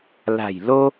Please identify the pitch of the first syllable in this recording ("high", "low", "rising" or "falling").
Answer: low